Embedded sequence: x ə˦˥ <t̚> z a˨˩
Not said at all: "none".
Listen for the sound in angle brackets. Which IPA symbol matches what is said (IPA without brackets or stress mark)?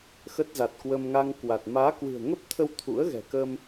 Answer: t̚